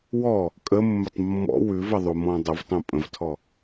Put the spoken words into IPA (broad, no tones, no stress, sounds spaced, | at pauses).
w ɔ | kʼ ə mː ə tˤ mː ɔ̰ w ʉ v ə ðˤ u m ɔ̃ dˤ ə v tˤ ũ pʼ ə̃ v tʰ ɔ